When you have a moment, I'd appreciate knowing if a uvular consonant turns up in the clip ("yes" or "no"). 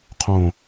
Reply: yes